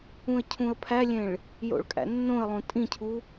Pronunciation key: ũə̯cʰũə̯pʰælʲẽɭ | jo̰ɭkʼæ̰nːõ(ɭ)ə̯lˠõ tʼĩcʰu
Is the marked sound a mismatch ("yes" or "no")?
yes